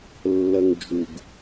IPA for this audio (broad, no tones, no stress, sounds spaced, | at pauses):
lː ɐ ŋ d͡ʒ u ɡ